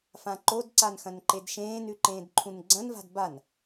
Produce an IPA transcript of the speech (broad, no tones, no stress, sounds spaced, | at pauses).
f ã ǃ o d ǀ a n x ɐ̃ n ǃ e d ʃ ẽː n ʉ ǃ ẽː d ǃʰ ũ n ɡ͡ǀ ɐ̃ n v a̤ d b a n